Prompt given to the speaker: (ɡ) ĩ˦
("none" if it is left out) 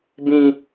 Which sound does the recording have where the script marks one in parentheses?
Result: b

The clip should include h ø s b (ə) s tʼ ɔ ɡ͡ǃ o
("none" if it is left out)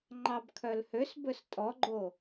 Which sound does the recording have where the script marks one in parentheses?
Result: ɵ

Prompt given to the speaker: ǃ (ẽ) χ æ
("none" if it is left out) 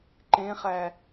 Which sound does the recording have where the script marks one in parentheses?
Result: ẽ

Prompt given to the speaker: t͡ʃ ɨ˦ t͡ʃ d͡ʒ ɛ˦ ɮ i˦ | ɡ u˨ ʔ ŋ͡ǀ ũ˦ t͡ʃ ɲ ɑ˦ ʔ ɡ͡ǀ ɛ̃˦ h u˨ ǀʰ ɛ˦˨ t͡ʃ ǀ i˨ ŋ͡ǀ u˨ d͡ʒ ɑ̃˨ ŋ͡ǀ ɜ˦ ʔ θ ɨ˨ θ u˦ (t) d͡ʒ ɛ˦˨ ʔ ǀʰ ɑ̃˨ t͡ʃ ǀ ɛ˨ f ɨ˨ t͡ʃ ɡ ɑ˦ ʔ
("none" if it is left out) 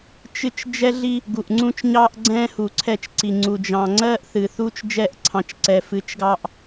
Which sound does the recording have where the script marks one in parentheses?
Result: t͡ʃ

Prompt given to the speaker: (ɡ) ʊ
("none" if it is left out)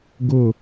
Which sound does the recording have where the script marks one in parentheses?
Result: ɡ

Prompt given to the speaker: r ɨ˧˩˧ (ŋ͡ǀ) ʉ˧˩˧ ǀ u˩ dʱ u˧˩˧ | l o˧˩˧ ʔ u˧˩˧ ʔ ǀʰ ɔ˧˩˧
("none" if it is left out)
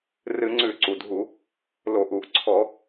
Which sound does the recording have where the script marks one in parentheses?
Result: ŋ͡ǀ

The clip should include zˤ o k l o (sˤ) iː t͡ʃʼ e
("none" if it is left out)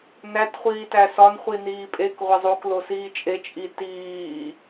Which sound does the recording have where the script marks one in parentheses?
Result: s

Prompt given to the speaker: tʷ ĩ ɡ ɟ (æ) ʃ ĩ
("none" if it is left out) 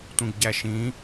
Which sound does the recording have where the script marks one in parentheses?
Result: æ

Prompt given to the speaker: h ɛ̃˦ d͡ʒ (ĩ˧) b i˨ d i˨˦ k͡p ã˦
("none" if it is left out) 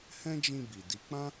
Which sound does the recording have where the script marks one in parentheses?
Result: ĩ˧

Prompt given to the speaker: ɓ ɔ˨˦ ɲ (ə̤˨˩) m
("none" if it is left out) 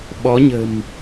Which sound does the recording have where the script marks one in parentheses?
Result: ə̤˨˩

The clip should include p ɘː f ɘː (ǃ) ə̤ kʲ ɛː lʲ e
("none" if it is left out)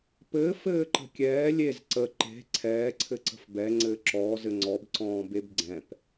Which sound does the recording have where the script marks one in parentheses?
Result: ǃ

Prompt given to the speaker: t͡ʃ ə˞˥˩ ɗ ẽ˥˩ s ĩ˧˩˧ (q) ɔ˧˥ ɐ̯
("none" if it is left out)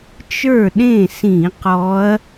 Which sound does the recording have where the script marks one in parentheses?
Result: q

